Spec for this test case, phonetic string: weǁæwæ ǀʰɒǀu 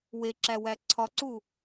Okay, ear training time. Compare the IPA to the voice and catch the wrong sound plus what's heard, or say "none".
none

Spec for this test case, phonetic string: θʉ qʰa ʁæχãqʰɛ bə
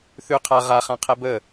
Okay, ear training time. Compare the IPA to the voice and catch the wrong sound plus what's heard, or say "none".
æ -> a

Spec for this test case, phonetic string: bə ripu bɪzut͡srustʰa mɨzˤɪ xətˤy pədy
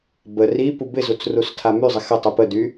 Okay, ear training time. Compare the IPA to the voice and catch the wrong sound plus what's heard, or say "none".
ɨ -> y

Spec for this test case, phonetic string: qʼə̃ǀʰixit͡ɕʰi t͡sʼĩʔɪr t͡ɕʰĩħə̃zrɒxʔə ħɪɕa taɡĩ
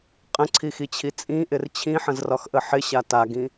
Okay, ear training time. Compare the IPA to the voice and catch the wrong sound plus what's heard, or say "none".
none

